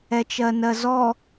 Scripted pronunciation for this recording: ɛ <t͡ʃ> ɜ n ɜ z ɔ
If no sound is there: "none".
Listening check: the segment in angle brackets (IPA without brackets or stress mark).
t͡ʃ